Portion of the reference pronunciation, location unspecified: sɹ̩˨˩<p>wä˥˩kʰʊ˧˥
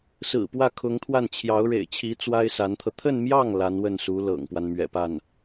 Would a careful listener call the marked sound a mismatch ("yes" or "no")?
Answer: no